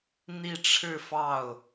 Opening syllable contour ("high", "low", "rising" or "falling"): falling